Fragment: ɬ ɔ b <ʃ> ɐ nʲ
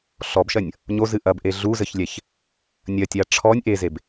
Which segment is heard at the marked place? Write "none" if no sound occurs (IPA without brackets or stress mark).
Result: ʃ